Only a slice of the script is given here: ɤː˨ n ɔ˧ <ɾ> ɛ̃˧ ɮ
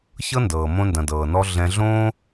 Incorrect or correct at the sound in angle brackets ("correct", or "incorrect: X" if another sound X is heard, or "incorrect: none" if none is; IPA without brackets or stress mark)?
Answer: incorrect: ɮ